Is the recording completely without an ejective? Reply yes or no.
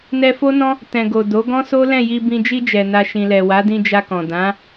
yes